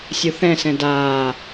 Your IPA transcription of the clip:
sʲ u θ ɛ̃ s ɛ̃ d aː

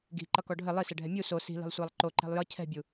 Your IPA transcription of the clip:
ɡ i̤ ǃ ʌ k ɔ ɖʱ ɘ lˠ i s ɛ ɖʱ ɛ mʲ u s o s i̤ l i̤ lˠ sʷ æ lˠ ǃ o ǃ ɛ̤ lˠ j ʌ cʰ ɛ̤ bʲ u

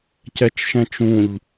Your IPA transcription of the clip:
c ɛ t͡ʃ ʃ ɛ̃ t͡ʃ ũ ʎ

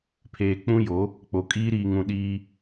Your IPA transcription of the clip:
pʰ eː˨ k͡p ũ˦ j o˨˦ | k͡p o˨ kʼ iː˦ ɾ iː˨ ŋ ũ˨ ɗ iː˦

